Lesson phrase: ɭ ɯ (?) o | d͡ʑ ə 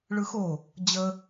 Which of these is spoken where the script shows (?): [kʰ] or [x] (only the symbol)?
x